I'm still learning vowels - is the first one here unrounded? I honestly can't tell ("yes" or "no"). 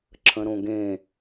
yes